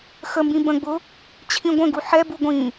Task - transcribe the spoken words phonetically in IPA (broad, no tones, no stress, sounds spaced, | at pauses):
x ə m b ĩ b ə̃ ɡ͡b ʊ | t͡ɕʰ ĩ ɡʷ ə̃ ɡ u ħ ɛ b u ɡʷ ĩ